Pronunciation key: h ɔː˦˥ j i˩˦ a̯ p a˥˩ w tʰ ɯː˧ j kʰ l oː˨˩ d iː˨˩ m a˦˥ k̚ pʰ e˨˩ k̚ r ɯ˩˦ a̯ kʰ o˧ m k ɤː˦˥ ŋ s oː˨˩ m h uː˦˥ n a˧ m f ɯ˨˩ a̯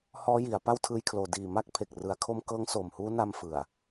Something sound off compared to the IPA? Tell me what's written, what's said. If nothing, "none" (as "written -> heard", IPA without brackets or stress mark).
none